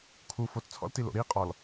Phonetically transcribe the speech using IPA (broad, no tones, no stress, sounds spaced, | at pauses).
kʰ u f o t t͡sʰ ɔ̰ l t i l o̰ ɾ i qʼ ɔ l